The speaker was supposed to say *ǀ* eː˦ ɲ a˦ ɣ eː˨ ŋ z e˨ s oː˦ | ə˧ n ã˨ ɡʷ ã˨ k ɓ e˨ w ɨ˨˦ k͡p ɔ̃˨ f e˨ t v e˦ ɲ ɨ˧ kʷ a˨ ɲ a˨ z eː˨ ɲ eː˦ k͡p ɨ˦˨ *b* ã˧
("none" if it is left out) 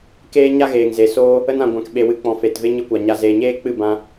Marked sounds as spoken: k, b

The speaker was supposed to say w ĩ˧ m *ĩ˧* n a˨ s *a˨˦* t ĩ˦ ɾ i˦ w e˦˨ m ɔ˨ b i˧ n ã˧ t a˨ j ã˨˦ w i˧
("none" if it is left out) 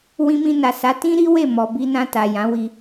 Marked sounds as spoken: ĩ˧, a˨˦

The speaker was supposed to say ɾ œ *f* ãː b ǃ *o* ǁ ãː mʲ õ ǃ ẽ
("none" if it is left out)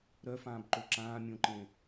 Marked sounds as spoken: f, o

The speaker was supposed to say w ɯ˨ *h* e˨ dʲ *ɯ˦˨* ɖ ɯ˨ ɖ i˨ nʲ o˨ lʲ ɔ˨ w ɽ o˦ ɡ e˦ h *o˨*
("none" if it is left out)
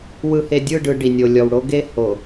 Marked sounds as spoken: h, ɯ˦˨, o˨

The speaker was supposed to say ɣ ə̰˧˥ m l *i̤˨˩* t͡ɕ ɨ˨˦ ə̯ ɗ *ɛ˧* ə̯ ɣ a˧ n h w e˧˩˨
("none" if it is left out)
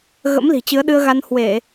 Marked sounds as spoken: i̤˨˩, ɨ˧

